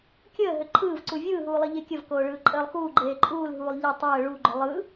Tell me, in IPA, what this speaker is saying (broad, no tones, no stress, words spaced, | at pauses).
kʲəːɦʏ ǃʰɯːvǀu vʲɯːɦuː lˠɯʎekʲəvkoː ɭɯːǃʼəːlˠxuːɡ͡ǃeː ǃʼuːlɦuːlˠ ʎɛ tˤəː ɭuɡ͡ǃʏ lˠɯ